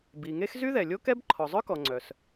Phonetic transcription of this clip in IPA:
bi˩ŋe˥x zy˥ðɛ˩lʲo˥ kɛ˥b ǃʰɔ˩zˤœ˥kɔ˩ ŋ͡ǀœ˩s

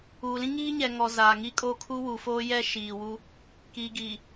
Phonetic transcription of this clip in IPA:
uː˨lĩ˦ ŋiː˦ɲɛ˨ ŋɔ˨ zaː˨ŋi˦kʼoː˦ kʰu˦wu˨foː˦ jɛ˦ ʃiː˨wu˦ | kiː˨ɡiː˨

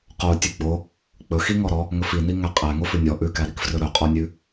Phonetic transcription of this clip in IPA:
qo tʲʉɡ͡bo | k͡pɵxi ŋɔɾɔ | ŋɵfini ŋæqʼæ ŋofʉnʲɔ ʔʉkæɾik frɵɾɵqʼɔnʲʉ

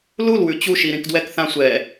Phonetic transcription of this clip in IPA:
lulwʉ t͡ɕuʃiɾĩk dwɛkθã sʷɛ

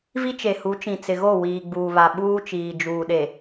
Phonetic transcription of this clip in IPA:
vi˦t͡ʃe˨hu˨˦t͡ʃĩ˨ t͡sɪ˨ɣo˦˨ wiː˨ɡ͡buː˨βa˨ ɓuː˦t͡ʃiː˨ d͡ʒuː˨ɗe˨

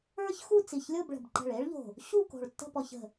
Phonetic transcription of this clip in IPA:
ə˞˥çxu˥˧ t͡si˧˩çlʲo˥˧bɭə̤˧˩bǃə̤˧˩ɭ e˥ɭʎo̤˧˩ | ɕu˥˧ko̤˧˩ɭ tːə̤˥˧pɔ˧çə̤˧˩

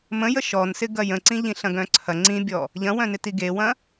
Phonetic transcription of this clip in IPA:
mə̃ jəʃɔnsɪ ɡɐjə̃ǀĩ ʎĩɬɐ̃ɡœ̃ǀʰɐ ŋ͡ǀĩbʲɔ | ʎɐ̃wœ̃nɪti ɡewɐ̃

